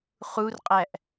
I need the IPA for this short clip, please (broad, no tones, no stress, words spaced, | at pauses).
χurqʼæʔ